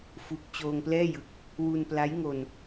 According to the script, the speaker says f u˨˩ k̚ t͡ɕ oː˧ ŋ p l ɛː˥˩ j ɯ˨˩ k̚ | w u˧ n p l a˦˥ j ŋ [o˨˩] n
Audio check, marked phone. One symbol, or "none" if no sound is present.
o˧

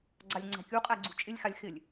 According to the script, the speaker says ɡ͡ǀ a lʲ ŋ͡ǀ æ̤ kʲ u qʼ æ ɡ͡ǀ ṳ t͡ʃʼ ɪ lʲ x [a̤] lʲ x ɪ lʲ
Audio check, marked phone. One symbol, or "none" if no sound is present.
a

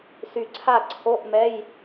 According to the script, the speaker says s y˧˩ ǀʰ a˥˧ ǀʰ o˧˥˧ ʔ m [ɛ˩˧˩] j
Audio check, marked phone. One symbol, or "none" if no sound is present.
ɛ˧˥˧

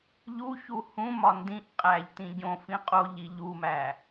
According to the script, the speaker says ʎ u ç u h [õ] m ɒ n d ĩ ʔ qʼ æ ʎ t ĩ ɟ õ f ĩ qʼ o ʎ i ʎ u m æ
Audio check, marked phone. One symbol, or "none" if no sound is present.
ũ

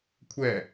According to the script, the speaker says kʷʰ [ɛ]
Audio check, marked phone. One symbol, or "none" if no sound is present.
ɛ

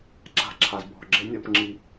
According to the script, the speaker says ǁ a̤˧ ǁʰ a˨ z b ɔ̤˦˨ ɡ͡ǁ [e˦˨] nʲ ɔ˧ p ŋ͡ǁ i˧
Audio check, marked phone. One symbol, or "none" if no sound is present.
e˦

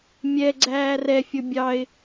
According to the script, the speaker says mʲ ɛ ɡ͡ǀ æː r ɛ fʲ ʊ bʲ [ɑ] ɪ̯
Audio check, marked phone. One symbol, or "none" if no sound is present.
ɑ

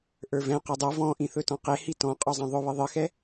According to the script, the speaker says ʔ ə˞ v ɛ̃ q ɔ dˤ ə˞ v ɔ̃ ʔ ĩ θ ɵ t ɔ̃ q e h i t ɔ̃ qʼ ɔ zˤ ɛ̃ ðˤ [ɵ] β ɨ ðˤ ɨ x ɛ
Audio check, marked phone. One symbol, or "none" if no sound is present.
ɵ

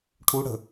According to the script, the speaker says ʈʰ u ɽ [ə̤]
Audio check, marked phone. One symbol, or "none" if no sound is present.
ə̤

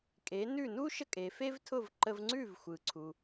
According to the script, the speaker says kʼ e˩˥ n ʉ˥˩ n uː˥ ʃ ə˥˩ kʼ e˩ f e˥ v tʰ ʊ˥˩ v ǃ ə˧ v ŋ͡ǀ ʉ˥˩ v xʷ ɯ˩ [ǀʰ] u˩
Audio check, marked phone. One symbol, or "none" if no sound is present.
ǀʰ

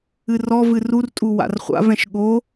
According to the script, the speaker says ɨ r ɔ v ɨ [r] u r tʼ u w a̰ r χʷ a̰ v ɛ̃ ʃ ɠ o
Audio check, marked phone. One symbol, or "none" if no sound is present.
r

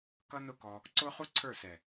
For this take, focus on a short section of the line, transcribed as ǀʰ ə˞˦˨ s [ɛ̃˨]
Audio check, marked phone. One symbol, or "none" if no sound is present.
ɛ˨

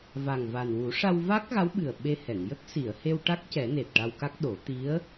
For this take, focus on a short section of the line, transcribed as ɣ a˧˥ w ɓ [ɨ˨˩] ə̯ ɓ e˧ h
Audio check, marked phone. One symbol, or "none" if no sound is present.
ɨ˨˩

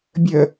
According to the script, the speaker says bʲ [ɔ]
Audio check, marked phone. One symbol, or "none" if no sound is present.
ə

